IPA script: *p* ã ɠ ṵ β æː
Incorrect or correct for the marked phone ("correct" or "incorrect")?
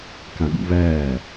incorrect